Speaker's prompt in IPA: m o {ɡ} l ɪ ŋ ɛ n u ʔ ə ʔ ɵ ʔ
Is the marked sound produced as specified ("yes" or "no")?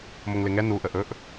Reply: no